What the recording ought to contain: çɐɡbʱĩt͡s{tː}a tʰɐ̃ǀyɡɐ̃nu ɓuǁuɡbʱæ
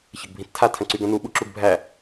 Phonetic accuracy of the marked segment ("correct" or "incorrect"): incorrect